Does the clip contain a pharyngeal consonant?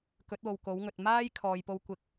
no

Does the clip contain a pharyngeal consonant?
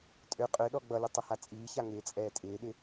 no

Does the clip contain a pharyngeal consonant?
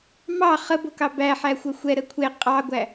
yes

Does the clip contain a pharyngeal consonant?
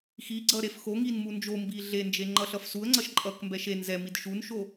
no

